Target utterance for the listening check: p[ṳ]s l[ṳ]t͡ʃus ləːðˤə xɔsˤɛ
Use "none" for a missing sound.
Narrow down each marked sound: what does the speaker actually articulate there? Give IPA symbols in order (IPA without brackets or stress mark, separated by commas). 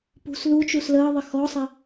ṳ, u